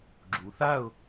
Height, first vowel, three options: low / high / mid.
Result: high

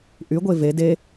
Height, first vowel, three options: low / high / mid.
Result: high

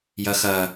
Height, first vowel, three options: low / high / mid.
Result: low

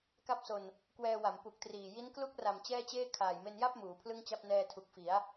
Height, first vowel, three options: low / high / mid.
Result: low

